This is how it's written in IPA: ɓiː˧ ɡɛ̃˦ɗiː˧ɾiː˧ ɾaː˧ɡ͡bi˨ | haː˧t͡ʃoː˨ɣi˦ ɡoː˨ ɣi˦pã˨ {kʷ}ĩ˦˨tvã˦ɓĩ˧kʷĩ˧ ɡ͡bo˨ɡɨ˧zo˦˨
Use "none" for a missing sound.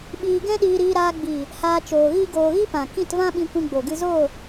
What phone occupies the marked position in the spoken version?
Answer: k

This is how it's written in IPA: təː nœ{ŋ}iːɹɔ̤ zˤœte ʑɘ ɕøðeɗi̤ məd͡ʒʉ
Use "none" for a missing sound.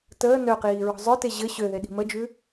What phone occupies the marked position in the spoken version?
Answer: q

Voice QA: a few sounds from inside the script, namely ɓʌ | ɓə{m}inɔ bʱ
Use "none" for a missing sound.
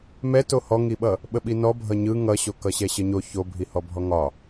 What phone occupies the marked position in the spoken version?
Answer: ɓ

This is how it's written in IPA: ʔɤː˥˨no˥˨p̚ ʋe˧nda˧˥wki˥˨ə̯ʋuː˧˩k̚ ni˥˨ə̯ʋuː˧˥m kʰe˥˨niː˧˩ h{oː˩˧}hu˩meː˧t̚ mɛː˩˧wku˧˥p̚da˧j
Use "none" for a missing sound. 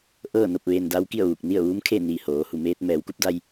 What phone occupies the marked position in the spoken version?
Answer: oː˩˧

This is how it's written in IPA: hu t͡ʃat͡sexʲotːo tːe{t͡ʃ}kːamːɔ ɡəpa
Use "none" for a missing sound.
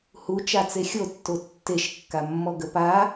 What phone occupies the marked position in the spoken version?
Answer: ʃ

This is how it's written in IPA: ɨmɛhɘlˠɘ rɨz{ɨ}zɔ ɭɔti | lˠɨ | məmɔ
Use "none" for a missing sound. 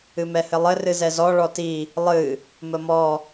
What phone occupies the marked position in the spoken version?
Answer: ɛ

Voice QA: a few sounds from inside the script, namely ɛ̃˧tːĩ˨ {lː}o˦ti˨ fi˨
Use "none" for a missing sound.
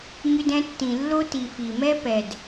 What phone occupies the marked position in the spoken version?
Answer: lː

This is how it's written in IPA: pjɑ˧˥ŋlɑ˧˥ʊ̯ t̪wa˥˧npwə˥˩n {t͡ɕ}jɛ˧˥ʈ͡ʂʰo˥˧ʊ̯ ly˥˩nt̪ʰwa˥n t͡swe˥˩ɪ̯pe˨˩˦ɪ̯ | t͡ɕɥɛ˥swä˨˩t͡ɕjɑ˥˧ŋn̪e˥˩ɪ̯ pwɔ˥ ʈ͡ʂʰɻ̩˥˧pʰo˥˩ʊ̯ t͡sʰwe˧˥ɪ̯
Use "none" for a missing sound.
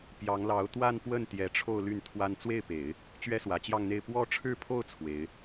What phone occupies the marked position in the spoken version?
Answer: t̪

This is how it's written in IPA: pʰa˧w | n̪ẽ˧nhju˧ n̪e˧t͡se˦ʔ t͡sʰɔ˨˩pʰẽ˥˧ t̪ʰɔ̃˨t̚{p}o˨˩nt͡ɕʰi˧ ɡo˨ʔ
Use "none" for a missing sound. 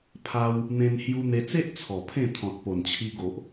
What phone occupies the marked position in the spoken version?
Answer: p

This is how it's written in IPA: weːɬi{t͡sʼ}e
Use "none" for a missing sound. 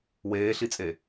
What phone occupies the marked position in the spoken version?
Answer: t͡sʼ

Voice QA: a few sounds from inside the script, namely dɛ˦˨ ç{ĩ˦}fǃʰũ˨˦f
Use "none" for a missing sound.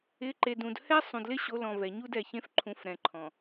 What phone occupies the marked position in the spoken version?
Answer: ẽ˦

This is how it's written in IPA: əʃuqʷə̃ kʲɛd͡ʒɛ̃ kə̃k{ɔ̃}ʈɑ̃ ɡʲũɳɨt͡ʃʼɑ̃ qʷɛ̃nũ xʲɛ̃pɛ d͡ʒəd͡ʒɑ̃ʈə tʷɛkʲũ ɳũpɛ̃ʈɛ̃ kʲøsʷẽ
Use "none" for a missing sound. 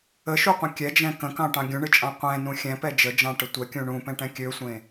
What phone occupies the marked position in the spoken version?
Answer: ɑ̃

